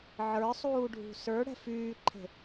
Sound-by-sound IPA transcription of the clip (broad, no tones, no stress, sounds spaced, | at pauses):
ʕ ə˞ sˤ uː ɖʱ ṳ s ə˞ ɽ ɛ̤ f yː ǃʰ e̤